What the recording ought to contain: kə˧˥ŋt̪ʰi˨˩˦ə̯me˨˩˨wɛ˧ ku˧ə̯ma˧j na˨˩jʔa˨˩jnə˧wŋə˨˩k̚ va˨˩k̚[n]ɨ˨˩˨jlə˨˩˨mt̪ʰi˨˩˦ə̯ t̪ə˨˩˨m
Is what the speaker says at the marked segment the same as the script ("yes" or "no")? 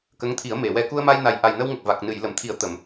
yes